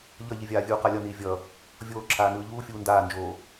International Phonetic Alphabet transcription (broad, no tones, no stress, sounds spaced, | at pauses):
ʎ ʌ ʎ i vʲ aː vʲ uː q a lʲ ʌ n iː vʲ ʌ | vʲ oː ǁʰ aː n ɯː ʎ uː fʲ uː n d aː n d͡ʒ oː